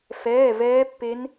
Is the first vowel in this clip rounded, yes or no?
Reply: no